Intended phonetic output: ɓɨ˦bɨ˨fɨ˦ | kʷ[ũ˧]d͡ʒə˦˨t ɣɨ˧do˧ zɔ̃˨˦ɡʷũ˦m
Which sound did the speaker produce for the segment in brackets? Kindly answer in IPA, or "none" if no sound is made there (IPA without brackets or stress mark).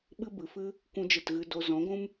ũ˦